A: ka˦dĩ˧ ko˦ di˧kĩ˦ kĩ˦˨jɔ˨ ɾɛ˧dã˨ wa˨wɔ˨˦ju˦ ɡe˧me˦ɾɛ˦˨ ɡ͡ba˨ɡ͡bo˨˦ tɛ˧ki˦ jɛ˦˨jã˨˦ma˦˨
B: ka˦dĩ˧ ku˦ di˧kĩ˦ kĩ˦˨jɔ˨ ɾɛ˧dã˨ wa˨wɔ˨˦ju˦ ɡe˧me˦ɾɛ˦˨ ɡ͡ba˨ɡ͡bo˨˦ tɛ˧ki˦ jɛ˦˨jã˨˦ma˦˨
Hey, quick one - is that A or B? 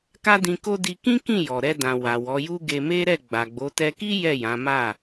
A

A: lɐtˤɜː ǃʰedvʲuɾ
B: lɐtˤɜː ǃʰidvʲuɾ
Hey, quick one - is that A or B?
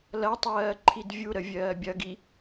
B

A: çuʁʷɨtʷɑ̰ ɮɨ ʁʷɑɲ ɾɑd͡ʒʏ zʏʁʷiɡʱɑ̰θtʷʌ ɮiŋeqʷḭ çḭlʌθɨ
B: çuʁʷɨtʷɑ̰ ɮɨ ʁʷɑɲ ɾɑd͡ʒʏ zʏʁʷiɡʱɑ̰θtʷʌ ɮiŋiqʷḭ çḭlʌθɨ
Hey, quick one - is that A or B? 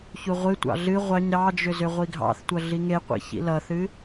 A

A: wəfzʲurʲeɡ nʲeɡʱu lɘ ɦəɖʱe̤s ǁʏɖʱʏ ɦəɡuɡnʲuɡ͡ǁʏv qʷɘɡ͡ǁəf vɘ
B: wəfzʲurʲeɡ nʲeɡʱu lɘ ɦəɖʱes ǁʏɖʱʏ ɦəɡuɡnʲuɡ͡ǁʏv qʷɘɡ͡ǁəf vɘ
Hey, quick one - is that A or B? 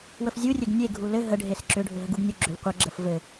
B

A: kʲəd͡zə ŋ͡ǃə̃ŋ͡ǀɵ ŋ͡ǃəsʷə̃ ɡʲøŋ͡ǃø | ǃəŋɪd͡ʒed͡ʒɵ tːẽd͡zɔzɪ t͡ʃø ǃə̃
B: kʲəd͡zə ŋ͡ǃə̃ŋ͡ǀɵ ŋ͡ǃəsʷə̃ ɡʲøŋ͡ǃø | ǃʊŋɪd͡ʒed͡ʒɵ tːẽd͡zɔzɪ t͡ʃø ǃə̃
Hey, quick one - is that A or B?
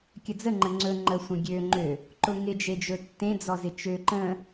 B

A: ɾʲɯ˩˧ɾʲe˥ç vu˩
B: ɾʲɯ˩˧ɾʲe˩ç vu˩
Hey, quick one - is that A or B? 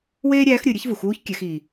A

